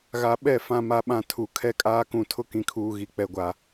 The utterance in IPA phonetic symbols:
ɣ a˨ ɓ ɛ˦˨ f ã˦ m a˦ ɓ ã˦ tʰ u˨ kʰ ɛ˦ kʼ aː˦ k ũ˨ tʰ ʊ˦ k ĩ˨ kʰ uː˨ ɣ i˨ k͡p ɛ˨ ɡʷ a˨

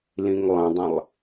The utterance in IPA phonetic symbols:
l ĩ ŋ lˠ ɐ̃ dˤ ɐ̃ lˠ

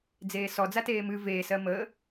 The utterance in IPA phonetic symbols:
d͡z eː s ɔ d͡z a t eː m ɨ v eː s ɜ m əː

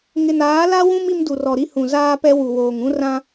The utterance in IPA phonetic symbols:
ŋ ɪ˨ n aː˨˦ l a˦ w ũ˦ m i˦ m d u˨ r ɔ˨ ɾ i˦ h ũ˨ z aː˦ p ɛ˦ w u˨ w oː˨ ŋ ũ˦ r ã˦

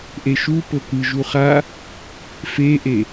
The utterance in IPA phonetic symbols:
ʔ e ʃ u p ɤ k ɯ ʒ u χ a | f e ʔ e

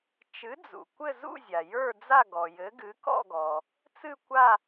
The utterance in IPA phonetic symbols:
t͡ʃ ɨ˨˥ d͡z ṵ˩ kʷ ɘ˥˧ z ṵ˥˧ zʲ a˩ j ə˞˥˧ d͡z a˥˧ ɡ ɔ˩ j ɘ˨˥ ɡ ɨ˨˥ k ɔ̰˥˧ ɡ ɔ˩ | t͡s ɨ˥˧ kʷ a˥˧

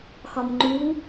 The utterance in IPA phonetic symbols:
x ɒ m ŋ͡ǃ u

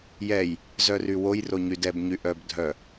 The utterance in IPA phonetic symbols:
j ɛ j | z œ r y w o j r o ɲ y d ɛ b ɲ y ʔ œ b dʱ œ

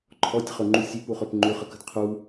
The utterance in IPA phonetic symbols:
ǃʰ ɔ tʲ χ ɵ ŋ͡ǃ u sʲ ʉ p u χ ø p ŋ͡ǃ ʉ χ ə k ə̤ d qʰ u

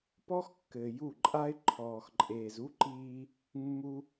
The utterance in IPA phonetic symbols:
p ɔ˦ x kː ɘː˨ j u˦˨ ǃʼ a˦ ɪ̯ ǃʰ ɔː˨ x ǃʼ eː˨ z u˦ ǃ iː˧ | mː u˧

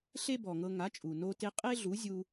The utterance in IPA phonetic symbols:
ɬ e˥ b ɔ˩ ŋ ɤ˧ ŋ a˩˥ t͡ʃʼ u˩ n o˧ t e˧ qʼ e˥ ɮ u˩˥ zʲ u˧

